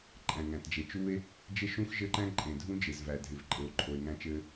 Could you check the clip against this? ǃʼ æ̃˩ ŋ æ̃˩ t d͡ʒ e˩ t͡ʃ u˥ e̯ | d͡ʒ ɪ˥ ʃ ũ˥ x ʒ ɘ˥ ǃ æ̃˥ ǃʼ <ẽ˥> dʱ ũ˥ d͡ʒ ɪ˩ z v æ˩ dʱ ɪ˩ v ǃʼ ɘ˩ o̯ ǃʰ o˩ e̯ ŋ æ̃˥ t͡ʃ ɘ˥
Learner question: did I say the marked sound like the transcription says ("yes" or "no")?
no